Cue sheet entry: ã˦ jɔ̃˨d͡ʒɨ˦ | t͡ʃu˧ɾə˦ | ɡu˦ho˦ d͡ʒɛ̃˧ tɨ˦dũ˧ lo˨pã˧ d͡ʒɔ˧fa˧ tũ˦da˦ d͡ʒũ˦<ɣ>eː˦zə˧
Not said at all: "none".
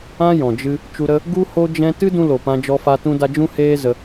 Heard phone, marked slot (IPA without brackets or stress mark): h